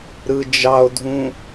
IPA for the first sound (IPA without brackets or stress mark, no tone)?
ɾ